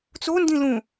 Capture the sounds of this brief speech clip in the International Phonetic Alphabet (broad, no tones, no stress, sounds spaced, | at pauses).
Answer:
t͡s o n d ĩ l ũ